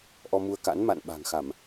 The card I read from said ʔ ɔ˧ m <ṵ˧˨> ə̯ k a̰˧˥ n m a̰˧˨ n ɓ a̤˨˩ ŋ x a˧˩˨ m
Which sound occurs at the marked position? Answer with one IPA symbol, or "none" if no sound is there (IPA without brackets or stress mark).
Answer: u˧